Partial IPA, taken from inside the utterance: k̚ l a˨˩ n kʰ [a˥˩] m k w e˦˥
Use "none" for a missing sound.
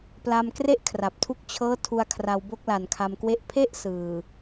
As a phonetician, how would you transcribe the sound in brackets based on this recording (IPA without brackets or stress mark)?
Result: a˧